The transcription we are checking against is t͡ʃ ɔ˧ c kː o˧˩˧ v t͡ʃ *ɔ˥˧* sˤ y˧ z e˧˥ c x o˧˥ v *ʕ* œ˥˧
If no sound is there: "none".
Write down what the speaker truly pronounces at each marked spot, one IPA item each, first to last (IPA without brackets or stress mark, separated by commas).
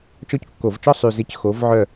ɔ˥˧, ʕ